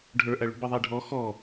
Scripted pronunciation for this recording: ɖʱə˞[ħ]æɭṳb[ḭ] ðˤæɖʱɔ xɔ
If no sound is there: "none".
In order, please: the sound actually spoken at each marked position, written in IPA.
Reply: ʔ, i

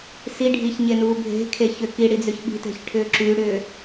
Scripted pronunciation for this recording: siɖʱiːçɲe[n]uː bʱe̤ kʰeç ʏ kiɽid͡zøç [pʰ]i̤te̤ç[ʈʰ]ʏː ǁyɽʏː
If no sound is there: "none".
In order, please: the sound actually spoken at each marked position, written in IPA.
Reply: n, ɓ, ʈʰ

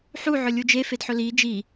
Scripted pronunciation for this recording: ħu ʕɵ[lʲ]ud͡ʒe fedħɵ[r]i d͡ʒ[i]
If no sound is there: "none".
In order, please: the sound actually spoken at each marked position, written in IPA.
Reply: lʲ, l, i

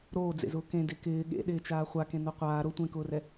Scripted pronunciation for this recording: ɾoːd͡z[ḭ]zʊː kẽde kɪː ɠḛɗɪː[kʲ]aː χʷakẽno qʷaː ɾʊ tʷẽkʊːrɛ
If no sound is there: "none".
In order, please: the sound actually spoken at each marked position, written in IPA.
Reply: ḛ, t͡ʃ

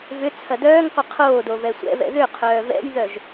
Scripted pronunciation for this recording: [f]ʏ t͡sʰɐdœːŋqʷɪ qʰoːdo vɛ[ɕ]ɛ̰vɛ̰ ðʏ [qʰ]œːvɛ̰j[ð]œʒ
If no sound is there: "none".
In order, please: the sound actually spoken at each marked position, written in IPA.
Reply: v, sʷ, qʰ, ð

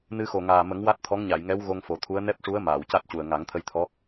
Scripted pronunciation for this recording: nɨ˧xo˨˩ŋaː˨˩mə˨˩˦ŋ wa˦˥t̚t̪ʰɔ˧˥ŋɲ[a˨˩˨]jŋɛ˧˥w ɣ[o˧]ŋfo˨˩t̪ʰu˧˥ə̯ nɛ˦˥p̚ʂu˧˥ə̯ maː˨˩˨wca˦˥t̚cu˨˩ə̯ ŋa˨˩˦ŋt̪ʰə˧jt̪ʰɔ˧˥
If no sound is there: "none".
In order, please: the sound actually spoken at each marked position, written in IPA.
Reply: a˨˩˨, o˧

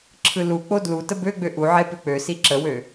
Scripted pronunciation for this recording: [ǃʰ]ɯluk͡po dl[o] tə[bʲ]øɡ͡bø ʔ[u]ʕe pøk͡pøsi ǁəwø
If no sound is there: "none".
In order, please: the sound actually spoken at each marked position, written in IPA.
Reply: ǁʰ, u, b, u

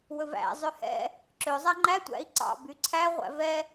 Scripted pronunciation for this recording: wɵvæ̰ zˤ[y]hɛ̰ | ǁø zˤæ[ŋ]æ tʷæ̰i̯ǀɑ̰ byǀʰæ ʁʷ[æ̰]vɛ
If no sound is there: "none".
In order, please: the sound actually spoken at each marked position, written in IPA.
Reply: ø, ŋ͡ǃ, æ̰

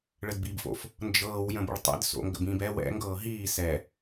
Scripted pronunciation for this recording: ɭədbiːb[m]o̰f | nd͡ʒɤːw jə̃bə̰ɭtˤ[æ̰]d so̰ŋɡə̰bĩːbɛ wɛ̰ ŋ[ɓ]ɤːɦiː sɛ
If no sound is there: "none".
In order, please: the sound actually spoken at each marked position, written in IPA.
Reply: f, ɛ̰, ɡ

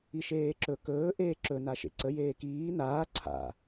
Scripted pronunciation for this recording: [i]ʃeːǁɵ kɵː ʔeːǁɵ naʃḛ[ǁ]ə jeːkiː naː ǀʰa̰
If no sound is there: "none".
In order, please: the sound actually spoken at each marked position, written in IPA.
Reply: i, ǀ

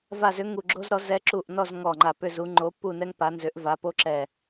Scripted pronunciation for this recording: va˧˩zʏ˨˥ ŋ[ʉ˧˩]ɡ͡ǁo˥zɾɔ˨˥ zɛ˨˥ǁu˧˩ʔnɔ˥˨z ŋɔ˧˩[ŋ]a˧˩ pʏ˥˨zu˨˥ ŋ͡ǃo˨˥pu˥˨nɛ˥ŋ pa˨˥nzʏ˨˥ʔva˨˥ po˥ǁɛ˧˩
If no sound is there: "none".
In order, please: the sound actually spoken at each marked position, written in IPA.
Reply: u˧˩, ŋ͡ǃ

